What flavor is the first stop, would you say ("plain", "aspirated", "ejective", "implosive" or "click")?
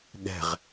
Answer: implosive